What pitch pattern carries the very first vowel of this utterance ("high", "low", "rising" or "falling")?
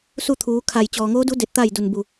falling